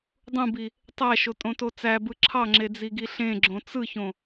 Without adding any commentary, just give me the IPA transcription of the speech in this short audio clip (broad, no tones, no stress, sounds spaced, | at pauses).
dˤ ũ b i | tˤ æ ʃ o tʼ õ t o t͡s æ b ɯ ǁʰ ɑ ŋ͡ǁ e d͡z i ɡ i ɬ ẽ ɡ͡ǁ õ t͡s ɯ ç õ